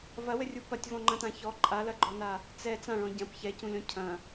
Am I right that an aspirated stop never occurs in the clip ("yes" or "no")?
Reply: no